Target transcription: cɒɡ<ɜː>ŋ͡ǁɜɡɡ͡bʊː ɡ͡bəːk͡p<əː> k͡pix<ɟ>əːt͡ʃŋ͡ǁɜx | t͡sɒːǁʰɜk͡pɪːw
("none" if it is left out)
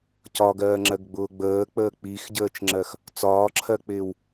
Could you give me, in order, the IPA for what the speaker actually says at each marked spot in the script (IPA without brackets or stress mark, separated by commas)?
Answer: ɜː, əː, ɟ